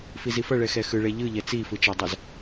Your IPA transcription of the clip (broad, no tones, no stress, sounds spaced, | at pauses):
f i z i f ʌ ɭ ɛ x ɛ x ɯ ɭ ɛ ʎ ɯ ʎ ɛ t͡s i f ɯ t͡ʃ ʌ dˤ ʌ z